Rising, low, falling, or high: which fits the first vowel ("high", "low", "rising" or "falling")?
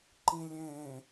low